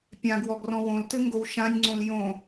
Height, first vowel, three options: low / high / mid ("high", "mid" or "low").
low